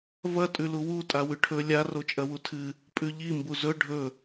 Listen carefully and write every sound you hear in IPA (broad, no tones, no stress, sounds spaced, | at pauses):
v ɐ tʼ ʉ l u w u tʼ a w ʉ ʈʰ ɵ lʲ a r o t͡ʃʼ ɐ w u tʰ ɨ | pʼ ʉ ʎ i m b u z ɵ ɖʱ ɵ